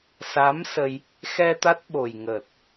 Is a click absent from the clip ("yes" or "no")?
yes